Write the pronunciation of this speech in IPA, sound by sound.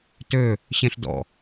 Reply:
t ø | ɕ ẽ ɬ d ɔ̰

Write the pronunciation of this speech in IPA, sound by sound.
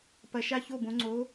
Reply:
p ɐ˨˥ ʃ a˥˨ ç o˥˨ b õ˨˥ ŋ͡ǀ o˨˥

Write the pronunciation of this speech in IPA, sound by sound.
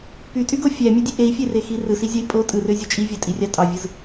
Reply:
p y tʼ y ɡ o fʲ æ mʲ ø dʲ e ʔ e i̯ fʲ e r e x i r ɯ s i zʲ ɑ i̯ pʼ o tʼ ɯ r ø zʲ o t͡ʃʼ i vʲ ɑ tʼ i rʲ ɑ tʼ ɑ vʲ ɯ z

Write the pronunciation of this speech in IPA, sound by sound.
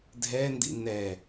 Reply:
dʱ ɛ n d ḭ n ɛ

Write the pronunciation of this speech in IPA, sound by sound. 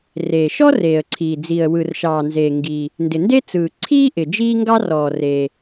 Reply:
r eː˩ ʃ ɔ˥ r eː˩ ə̯ ǀʰ iː˩ d͡z i˩ ə̯ w ɯ˩ r ʃ ɑː˩ n z eː˩ ŋ ɡ i˩ | n d ɪ˩ n d e˥ t͡s ɯː˩ ǀʰ iː˥ ʔ ɪ˩ d͡ʒ iː˥ ŋ ɡ ɑ˥ r ɔː˩ r e˩

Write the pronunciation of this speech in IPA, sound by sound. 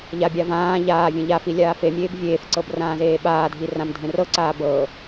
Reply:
ʎ a bʲ a v ãː ʎ aː vʲ ẽ ʎ a f i lʲ aː f e mʲ eː b vʲ eː f ǀ ɤ b r ãː z eː ɓ aː dʱ i r ã m dʱ ẽ r ɤ ǀ aː b ɤ

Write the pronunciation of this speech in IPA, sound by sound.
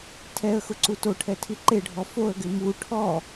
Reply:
tʰ ɛ ə̯ x ʊ ǀ u t o ʈʰ ɛ tʰ i ǃ e ɖʱ ɔ f o ə̯ ɡ ɪ m u ʈʰ ɔ

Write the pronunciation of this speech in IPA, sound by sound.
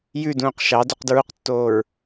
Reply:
j ʉ d ũː q ʃ ɑ d u q d ɹ u q tː oː ɹ

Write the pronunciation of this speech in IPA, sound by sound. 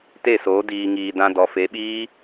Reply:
t e˦˨ s oː˨˦ d iː˨ ŋ iː˨ d ã˧ d ɔ˨ f e˨˦ ɓ iː˦

